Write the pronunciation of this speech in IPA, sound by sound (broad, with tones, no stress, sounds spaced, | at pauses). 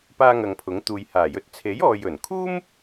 p aː˥ ŋ ɐ˧ ŋ pʰ ʊ˨˥ ŋ t̪ uː˨ j h aː˨˩ j ɵ˧ t̚ t͡sʰ e˨˥ j ɔː˨ j ɵ˨˩ n kʰ uː˥ m